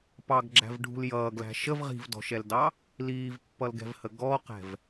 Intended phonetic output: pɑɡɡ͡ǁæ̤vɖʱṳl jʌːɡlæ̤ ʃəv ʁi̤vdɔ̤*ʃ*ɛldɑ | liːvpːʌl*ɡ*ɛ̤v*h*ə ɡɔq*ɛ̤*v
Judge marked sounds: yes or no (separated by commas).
yes, yes, yes, yes